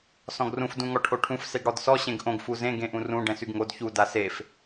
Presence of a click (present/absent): absent